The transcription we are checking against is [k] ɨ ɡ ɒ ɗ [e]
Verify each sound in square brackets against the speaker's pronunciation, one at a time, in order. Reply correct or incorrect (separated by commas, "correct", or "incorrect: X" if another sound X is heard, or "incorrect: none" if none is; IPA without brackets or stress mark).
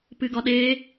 incorrect: p, correct